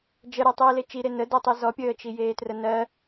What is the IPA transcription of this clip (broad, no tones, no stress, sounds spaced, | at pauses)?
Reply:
d͡ʒ ə ɾ ɜ tˤ iː l e t͡ʃ i ɾ e n ə d o tˤ i z ɔ pʲ əː t͡ʃ i j eː t r ə n ɜ